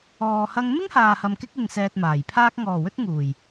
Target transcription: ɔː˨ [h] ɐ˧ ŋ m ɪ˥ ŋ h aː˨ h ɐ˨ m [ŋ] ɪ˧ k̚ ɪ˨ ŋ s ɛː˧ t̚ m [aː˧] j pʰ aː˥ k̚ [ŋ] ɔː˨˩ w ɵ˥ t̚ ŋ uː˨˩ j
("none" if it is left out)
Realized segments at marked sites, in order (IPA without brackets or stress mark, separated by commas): h, k, aː˨˩, ŋ